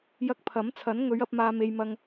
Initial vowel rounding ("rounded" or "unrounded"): unrounded